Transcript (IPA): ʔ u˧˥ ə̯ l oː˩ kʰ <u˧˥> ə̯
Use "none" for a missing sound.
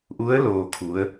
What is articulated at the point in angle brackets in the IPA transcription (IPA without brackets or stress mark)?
u˩˧